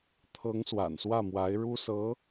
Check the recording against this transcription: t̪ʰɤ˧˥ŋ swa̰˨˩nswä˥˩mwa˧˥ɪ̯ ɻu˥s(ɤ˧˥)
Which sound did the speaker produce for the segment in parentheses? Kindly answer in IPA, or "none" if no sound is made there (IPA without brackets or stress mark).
ɤ˧˥